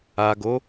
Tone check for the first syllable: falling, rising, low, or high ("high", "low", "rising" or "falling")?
low